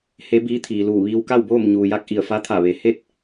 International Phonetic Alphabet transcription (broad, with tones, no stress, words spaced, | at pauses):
he˧˥biː˧˥t̪ʰiː˩luː˧˩ ʋiː˧wka˥˨wboː˥˨m ɲuː˩ja˧k̚ ʔi˧˩ə̯fa˧˥t̪ʰa˧˩ ʋe˩ he˥˨t̚